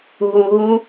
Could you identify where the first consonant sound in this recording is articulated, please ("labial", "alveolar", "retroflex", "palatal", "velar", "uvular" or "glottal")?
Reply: glottal